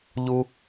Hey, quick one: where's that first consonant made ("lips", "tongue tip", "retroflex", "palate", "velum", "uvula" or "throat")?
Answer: palate